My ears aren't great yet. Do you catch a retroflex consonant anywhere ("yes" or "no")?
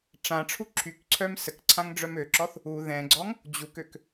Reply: yes